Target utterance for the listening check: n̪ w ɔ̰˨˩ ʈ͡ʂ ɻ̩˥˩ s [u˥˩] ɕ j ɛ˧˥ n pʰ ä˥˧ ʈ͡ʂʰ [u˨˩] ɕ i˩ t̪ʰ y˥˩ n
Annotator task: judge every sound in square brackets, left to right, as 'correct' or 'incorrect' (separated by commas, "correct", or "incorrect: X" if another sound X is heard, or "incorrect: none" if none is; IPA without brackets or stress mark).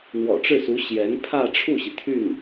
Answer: incorrect: u˧˥, incorrect: u˥˩